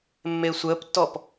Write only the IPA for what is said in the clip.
mː e sʷ əː p tː ɔ p

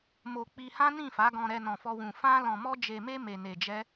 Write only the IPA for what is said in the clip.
m o˧ k͡p i˧ h ã˦ n ĩ˦˨ f a˨˦ ɡ ɔ̃˧ ɾ ɛ˧ n ɔ̃˧ f ɔ˦ w ũ˧ f ã˦ l ɔ̃˧ m ɔ˦ d͡ʒ e˧ m e˦ m e˧ n e˧ d͡ʒ ɛ˦

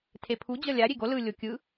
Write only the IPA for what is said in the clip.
tʰ e pʰ u d͡ʑ ʌ lʲ a ɾʲ e ɡ o l ɯ lʲ o kʲ ɯ

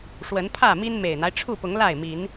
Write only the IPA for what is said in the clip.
ʂ w ə˨˦ n pʰ ä˥˨ m i˦ n m e˨˩ ɪ̯ n̪ a˦ ɪ̯ ʈ͡ʂʰ u˥˨ p ʊ˨˦ ŋ l a˥˨ ɪ̯ m i˨˦ n

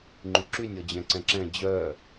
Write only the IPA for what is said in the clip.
ŋ͡ǃ y ǁ y nʲ ɔ d͡ʑ ɛ̃ ǀ ɛ̃ ǁ ɛ̃ d͡ʑ œː

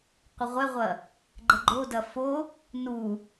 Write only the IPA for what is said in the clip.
qʷ ə ʁʷ ɛ ʁʷ ɐ | ɡ͡ǃ ə ɡ͡ǃ o d ɐ f o | n u

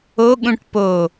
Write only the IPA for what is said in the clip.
o ɠ ũ ʈ p o

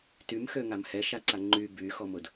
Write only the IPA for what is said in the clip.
t y m x ø ŋ a m h ɛ ʃ a ǀ a ŋ͡ǃ y b y x ɔ m ʊ d

